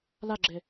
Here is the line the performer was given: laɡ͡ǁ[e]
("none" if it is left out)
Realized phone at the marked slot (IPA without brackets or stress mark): e